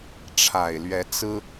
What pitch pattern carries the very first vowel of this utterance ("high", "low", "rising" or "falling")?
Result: low